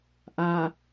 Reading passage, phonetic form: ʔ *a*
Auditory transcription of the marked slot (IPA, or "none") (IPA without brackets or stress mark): a